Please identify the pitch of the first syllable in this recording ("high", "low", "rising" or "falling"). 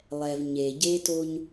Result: low